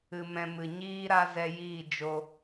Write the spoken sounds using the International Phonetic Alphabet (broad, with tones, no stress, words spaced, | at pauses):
ɨ˧mɛ̃˧ mɨ˨ ɲiː˦ɾa˦zɛ˧jiː˦˨ d͡ʒo˧